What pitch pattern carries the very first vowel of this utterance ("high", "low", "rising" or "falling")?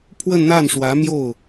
falling